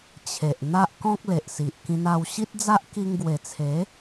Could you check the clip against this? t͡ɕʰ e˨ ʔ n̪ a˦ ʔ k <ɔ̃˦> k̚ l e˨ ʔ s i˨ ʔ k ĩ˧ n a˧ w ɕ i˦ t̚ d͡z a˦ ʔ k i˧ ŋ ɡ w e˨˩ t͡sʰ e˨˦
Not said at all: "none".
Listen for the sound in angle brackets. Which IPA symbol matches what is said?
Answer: ɔ̃˦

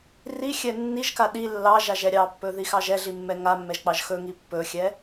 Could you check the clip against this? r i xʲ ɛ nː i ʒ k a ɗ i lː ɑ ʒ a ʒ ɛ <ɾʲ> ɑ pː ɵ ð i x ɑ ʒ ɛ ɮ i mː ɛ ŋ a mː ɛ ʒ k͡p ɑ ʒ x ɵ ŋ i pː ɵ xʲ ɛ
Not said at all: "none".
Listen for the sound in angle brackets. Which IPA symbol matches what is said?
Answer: ɾʲ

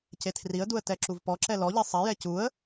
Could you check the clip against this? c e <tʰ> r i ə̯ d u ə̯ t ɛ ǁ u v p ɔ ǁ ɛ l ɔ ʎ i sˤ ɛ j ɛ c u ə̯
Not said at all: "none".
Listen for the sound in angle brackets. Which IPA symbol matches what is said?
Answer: tʰ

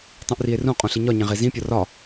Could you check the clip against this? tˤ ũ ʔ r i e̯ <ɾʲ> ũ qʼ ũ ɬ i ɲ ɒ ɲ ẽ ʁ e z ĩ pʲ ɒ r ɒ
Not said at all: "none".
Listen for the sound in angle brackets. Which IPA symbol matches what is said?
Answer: r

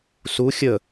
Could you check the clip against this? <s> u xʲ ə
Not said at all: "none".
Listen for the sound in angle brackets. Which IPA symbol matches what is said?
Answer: s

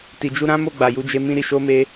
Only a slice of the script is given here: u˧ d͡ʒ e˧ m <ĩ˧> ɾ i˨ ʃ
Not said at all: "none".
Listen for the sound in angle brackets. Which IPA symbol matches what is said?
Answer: ĩ˧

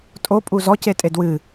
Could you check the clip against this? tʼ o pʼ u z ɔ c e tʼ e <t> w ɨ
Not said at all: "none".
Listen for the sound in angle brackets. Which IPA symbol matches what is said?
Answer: d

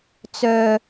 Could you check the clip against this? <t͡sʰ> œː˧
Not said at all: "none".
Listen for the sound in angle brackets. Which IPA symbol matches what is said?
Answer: t͡s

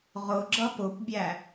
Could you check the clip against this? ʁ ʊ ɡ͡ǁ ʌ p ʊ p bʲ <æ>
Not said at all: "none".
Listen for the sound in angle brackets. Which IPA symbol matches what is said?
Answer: æ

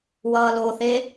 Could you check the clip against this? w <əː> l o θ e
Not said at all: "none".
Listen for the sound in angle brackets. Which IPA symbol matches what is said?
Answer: ʌː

